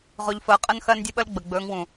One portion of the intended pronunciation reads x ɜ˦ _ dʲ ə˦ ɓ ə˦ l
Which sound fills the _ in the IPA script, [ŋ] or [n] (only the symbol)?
n